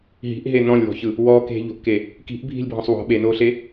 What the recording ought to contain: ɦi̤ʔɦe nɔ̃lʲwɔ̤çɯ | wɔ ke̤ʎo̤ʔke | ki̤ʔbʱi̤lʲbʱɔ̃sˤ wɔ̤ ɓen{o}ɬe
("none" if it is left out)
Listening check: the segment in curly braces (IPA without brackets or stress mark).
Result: o